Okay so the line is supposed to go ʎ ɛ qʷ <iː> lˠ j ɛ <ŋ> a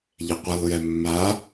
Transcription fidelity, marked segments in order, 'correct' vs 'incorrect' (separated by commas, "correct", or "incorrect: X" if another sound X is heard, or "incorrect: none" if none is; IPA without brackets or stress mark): incorrect: i, incorrect: mː